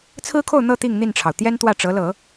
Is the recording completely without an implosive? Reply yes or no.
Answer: yes